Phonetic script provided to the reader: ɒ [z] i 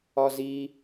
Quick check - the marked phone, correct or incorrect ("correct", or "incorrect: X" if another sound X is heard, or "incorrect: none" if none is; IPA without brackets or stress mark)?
correct